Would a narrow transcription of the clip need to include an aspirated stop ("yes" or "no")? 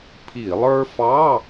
yes